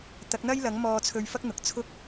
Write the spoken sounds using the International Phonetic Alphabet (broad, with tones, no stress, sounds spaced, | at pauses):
t̪ ɐ˨˥ k̚ n̪ ɐ˥ j l ɐ˨˥ ŋ m ɔː˧ t͡sʰ ɵ˧ ɥ f ɐ˥ k̚ n̪ ʊ˨ k̚ t͡sʰ ʊ˥ k̚